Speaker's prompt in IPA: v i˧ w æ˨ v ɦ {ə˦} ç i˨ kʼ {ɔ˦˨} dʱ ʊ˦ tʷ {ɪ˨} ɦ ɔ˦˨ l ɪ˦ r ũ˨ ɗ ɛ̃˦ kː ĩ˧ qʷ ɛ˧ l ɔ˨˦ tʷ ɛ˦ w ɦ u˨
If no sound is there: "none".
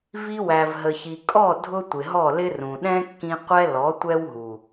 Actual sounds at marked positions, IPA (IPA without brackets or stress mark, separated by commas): ə˨, ɔ˦˨, ɪ˨